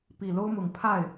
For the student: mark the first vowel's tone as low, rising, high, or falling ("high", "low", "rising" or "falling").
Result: low